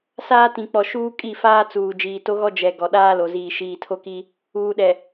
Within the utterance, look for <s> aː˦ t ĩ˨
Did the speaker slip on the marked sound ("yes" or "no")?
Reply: no